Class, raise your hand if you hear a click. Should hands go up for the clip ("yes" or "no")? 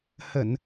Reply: no